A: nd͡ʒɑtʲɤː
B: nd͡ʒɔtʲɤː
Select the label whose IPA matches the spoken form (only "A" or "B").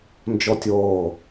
B